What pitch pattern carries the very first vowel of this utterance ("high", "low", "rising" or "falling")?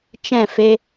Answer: falling